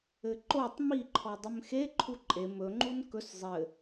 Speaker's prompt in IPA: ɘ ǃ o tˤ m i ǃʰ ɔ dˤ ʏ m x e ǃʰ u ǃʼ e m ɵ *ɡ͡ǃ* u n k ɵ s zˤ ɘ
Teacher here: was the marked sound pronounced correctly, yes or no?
no